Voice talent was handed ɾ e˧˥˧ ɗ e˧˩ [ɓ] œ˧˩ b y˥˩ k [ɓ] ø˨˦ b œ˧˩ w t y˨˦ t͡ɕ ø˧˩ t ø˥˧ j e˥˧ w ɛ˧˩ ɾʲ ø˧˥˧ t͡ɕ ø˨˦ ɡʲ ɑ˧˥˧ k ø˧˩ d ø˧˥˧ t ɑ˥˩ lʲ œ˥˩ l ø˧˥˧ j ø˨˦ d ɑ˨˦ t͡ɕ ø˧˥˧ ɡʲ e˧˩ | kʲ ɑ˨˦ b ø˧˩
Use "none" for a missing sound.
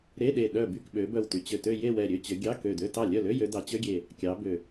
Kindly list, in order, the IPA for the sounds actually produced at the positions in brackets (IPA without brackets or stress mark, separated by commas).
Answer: ɗ, ɓ